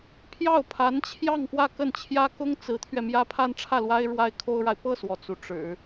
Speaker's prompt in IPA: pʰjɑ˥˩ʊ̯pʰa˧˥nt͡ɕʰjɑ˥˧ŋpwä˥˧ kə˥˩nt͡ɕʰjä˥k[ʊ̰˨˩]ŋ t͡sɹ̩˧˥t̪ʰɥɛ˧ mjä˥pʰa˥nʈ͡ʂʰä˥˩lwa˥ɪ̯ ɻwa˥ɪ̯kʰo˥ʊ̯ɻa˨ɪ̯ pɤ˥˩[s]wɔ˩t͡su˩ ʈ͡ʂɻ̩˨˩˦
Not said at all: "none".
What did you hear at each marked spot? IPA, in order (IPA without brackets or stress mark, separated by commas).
ʊ˥, s